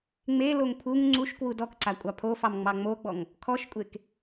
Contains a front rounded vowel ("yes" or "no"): no